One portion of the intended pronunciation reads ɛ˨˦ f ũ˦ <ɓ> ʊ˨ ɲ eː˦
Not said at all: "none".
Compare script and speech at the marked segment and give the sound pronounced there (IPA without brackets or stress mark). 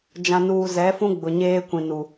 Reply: ɡ͡b